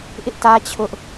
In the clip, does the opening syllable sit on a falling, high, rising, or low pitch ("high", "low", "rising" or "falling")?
high